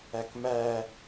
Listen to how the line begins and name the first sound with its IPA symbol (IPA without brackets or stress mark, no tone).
æ